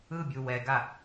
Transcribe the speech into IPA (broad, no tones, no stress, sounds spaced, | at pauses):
ɯ bʲ u w ɛ ɡ a